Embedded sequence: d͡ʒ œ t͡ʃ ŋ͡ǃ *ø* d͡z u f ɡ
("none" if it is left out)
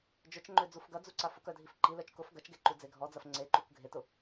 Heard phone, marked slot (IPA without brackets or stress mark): ø